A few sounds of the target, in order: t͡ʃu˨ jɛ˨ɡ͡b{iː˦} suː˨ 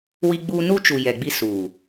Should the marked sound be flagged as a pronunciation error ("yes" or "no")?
yes